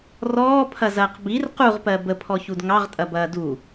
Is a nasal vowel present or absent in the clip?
absent